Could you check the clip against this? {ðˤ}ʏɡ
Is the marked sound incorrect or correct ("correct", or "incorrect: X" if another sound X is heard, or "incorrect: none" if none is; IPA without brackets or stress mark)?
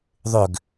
correct